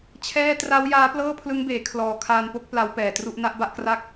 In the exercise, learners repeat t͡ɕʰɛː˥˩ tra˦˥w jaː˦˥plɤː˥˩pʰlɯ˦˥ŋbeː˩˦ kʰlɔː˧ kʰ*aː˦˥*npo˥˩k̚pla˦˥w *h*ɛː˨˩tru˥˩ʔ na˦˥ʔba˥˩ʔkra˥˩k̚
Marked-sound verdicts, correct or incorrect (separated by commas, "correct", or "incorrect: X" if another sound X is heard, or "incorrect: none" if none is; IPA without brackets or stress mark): incorrect: aː˧, incorrect: p